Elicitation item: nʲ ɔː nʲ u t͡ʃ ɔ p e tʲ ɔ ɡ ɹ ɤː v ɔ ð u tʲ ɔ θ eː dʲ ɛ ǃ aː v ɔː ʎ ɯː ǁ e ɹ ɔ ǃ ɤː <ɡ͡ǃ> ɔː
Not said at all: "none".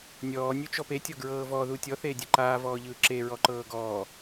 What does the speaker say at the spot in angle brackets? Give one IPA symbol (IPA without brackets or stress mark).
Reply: ɡ